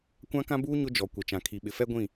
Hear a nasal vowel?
yes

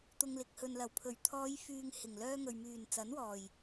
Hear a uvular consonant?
no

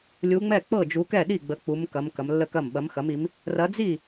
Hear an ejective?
no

